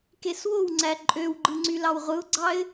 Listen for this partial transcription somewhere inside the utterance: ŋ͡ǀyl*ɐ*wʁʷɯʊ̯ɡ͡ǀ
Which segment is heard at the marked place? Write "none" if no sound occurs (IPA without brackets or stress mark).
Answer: ɑ